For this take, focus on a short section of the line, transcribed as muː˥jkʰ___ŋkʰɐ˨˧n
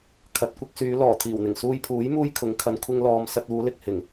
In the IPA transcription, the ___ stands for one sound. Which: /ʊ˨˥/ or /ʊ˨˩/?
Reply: ʊ˨˥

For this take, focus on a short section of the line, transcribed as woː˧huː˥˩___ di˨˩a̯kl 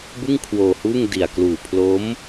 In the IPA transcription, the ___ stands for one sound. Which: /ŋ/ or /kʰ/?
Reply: ŋ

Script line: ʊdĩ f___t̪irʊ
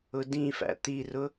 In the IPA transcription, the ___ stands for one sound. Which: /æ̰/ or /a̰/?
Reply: æ̰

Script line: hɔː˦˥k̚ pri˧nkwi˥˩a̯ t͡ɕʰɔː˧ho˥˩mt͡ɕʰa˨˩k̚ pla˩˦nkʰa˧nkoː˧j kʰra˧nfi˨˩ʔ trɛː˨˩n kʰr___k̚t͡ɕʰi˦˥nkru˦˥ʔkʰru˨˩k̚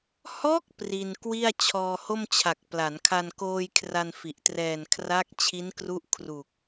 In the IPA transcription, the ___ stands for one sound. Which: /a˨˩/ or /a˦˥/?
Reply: a˦˥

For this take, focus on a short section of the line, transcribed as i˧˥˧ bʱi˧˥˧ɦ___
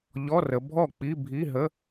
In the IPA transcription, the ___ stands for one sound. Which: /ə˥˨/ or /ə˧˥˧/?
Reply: ə˧˥˧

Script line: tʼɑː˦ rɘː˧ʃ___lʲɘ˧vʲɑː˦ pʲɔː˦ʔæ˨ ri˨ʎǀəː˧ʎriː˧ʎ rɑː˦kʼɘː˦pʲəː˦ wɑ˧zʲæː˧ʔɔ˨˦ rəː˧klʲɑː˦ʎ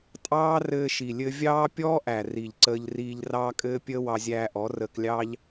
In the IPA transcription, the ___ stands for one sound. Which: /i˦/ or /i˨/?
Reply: i˨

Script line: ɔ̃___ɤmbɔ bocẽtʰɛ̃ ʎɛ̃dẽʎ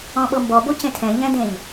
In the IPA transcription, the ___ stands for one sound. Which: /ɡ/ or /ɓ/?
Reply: ɓ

